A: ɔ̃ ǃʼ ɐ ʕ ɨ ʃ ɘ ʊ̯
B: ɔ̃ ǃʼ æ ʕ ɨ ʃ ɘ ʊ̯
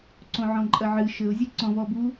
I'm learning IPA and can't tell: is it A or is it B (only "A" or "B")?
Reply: A